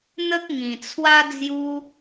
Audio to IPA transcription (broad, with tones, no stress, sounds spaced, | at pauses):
n̪ ə˦ k̚ ŋ ĩ˨˩ t͡sʰ w a˦ d͡z j u˦